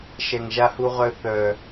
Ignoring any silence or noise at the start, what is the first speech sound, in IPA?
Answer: ʃ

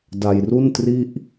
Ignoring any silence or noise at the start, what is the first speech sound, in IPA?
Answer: d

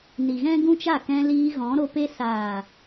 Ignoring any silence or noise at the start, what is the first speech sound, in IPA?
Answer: n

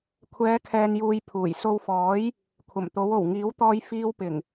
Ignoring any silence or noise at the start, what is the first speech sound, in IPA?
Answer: kʷʰ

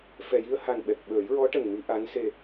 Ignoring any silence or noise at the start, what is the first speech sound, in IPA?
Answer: f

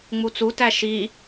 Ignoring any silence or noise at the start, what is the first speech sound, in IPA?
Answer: ŋ͡m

